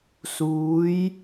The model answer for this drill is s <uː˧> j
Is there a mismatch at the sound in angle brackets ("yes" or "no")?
yes